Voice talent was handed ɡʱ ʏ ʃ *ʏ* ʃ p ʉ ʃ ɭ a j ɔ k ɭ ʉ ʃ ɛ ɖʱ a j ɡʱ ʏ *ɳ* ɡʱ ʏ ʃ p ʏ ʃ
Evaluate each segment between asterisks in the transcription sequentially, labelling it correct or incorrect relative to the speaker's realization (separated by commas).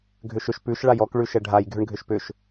correct, correct